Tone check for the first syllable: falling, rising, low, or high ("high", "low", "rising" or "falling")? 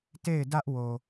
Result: falling